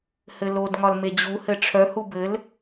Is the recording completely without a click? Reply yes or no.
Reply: yes